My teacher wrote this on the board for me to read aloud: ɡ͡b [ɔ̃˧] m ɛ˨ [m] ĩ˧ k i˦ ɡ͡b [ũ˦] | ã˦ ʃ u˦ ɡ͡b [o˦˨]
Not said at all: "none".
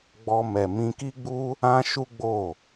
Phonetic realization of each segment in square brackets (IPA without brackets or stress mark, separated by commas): ɔ˧, m, u˦, o˦˨